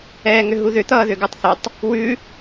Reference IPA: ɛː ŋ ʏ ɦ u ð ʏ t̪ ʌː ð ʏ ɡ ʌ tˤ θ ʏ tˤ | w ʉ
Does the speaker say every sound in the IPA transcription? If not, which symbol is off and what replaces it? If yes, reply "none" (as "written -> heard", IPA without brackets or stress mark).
none